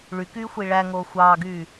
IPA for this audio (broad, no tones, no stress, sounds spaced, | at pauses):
ɭ y k yː xʷ i ɭ æ ŋ oː xʷ ɑː ɡ yː